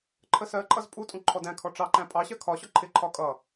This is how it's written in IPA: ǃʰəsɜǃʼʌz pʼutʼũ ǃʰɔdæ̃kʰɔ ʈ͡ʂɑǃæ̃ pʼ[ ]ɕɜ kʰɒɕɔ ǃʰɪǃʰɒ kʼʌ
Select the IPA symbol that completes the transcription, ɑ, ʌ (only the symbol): ɑ